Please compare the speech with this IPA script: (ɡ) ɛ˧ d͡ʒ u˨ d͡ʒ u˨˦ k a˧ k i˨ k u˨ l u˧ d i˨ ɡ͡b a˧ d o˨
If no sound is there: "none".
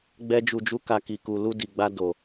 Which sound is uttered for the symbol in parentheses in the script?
ɡ͡b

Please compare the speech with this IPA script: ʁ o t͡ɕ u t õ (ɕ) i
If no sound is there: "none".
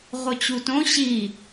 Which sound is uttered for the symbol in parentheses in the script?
ɕ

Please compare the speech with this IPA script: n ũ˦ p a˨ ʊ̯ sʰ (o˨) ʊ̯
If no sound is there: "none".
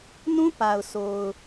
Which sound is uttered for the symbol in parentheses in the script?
o˨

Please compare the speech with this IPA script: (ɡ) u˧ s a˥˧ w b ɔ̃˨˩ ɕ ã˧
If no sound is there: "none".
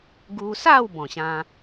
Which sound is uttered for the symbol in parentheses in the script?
ɡ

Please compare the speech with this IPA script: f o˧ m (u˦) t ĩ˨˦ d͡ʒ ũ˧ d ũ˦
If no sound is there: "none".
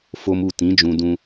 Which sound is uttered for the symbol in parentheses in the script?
u˦˨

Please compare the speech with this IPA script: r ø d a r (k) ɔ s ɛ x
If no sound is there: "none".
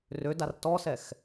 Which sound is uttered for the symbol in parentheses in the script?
t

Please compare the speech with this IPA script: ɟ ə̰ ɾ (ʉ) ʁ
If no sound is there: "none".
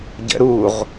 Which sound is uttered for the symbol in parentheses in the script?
u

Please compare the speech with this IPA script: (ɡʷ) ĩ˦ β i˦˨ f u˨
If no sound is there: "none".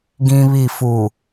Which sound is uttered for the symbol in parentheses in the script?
ɡ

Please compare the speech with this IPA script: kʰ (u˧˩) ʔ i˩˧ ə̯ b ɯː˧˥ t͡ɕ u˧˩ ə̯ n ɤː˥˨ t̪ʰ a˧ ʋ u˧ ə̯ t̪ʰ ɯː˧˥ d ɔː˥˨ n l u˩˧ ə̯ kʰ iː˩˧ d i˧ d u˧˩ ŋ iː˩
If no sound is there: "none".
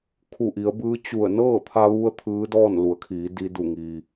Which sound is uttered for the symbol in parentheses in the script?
u˧˩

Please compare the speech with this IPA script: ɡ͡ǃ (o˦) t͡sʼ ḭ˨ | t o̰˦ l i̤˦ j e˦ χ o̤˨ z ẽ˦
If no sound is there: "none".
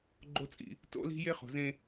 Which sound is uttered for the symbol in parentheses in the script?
o˦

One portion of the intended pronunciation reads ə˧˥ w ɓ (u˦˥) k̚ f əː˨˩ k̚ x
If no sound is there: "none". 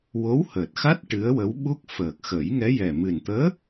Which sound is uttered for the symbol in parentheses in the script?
u˦˥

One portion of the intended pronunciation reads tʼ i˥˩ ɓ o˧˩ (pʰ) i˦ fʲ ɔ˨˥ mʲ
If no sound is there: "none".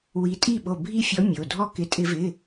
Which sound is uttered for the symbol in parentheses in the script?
bʱ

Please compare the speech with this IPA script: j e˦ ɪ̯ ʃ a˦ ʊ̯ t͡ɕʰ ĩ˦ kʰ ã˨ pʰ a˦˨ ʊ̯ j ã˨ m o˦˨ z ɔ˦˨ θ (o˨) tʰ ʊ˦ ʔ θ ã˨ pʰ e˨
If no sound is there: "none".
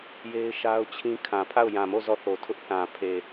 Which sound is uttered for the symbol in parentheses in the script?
o˨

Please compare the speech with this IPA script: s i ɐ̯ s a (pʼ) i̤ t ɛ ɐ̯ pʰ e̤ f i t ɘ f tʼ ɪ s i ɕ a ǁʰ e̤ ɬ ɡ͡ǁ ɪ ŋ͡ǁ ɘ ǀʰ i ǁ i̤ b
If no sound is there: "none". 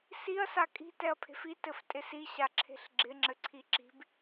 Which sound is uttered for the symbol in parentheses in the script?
kʼ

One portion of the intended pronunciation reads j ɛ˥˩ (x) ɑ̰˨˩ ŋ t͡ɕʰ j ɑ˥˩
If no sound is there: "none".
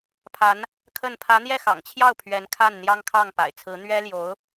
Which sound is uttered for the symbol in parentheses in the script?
x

